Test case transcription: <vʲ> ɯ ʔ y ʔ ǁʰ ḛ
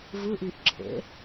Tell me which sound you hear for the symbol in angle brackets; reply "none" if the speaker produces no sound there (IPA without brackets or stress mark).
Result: v